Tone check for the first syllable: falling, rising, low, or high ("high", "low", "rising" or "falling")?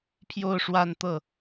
falling